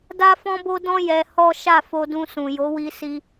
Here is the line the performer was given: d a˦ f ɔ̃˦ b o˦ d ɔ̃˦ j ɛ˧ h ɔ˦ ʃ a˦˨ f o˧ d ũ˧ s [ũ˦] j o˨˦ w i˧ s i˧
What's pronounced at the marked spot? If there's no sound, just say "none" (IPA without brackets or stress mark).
ũ˨